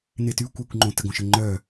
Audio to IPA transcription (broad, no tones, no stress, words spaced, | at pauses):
netykʷ œkʷ ŋ͡ǃõtəɡ õʃəŋ͡ǃœ